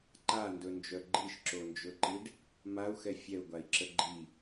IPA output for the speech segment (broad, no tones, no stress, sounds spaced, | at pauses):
ǃ a n d ɵ n d͡ʒ œ ɡ͡ǃ i ʃ ǁ o n d͡ʒ ɵ ǃ i ɖ | m a u̯ x ɛ fʲ ɛ u̯ ɡʷ a i̯ ǁ ə ɡ͡ǃ i